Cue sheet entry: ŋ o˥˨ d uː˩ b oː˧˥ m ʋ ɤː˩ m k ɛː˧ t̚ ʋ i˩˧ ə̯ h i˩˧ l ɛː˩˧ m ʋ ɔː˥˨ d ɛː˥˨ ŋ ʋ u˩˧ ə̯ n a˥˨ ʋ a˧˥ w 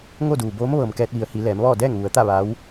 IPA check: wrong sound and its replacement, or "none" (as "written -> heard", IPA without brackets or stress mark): n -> t̪